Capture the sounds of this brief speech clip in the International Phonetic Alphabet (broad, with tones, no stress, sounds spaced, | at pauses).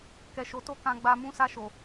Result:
k ɛ˨ ʃ o˨ t o˧ k ã˨ ɡ͡b a˨ m ũ˨˦ s a˧ ʃ o˨